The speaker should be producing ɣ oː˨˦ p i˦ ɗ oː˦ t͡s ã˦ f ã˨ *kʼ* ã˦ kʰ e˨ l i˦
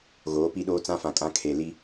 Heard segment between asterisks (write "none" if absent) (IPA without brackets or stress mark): kʼ